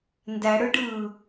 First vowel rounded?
no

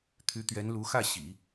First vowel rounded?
yes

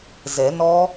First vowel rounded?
no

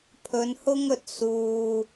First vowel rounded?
yes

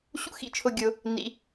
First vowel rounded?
yes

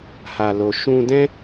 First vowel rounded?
no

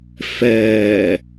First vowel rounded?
no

